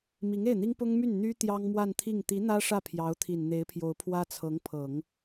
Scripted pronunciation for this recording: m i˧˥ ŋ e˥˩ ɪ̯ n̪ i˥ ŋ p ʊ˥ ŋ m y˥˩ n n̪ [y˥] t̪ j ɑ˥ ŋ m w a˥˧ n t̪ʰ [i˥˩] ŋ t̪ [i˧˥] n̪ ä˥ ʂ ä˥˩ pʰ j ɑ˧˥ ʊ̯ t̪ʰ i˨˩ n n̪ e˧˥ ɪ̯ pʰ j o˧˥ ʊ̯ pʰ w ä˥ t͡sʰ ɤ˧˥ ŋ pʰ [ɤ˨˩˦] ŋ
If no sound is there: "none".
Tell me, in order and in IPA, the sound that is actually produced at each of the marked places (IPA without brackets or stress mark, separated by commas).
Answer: y˥, i˥˩, i˧˥, ɤ˨˩˦